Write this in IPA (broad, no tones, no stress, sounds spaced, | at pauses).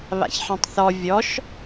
β a̰ ç ħ ĩ tˤ θ ɔ vʲ ɔ ʃ